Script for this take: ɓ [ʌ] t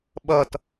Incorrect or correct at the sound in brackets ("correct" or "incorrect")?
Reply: correct